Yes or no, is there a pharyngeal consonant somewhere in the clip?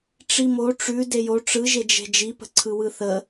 no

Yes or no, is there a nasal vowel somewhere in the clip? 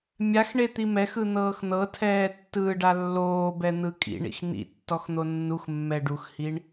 no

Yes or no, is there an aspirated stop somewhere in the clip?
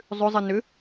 no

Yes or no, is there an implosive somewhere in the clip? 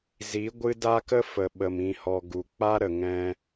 yes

